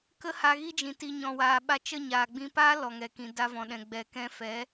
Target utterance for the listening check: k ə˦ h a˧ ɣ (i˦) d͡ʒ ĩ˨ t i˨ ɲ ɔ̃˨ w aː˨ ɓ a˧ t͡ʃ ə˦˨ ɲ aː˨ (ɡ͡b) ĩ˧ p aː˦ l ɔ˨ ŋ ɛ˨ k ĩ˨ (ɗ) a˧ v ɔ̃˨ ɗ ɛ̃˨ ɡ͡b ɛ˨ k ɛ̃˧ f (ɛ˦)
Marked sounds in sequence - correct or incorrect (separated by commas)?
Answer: correct, correct, incorrect, incorrect